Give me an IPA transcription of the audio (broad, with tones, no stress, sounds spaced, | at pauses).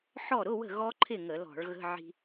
ħ ɔ˥˩ ɾ ʊ˧˥˧ w ə̤˥˩ ɣ ɔ˦˥ ǃʰ ɪ˥˩ ŋ ə˧˩˧ l ɔ̤˧˩˧ ɭ ɣ ə̤˧˥˧ ʕ i̤˧